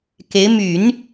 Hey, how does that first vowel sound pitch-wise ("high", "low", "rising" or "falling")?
rising